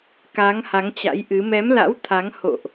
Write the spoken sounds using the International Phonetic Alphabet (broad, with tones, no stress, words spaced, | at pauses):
ka˨˦ŋha˨˦ŋt͡ɕa̰˧˥jʔɨ˨˦ mɛ˨˦mla̰˧˥w t̪ʰa˨˦ŋho̰˧˨ʔ